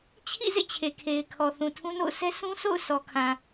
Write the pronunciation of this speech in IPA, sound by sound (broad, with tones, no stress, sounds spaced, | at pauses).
t͡ɕʰ ḭ˦˨ z ḛ˦˨ t͡ɕʰ e˨ kʰ e˨ ɪ̯ kʰ ɔ˨ θ ũ˨ tʰ ũ˦ n o̰˦˨ ʊ̯ sʰ ɛ˦ sʰ ũ˦ s o̰˦˨ ʊ̯ sʰ ɔ˨ kʰ ã˨